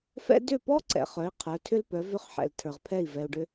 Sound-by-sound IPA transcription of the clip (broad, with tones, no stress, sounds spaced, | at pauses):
f ɛ̰˥ d ʏ˥˩ p ɔ˥ ǀ ɛ̰˩ χ œ˩˥ i̯ qʰ ə˞˩˥ tʰ ʏ˥ l p œ˩˥ v ʏ˥˩ χ ħ ɛ̰˩ l tʰ ə˞˩ ʁ pʰ ɛ˥˩ i̯ v ɛ˩ u̯ ɖ ʏ˧